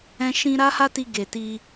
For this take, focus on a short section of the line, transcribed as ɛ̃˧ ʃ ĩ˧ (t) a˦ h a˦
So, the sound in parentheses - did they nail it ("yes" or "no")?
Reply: no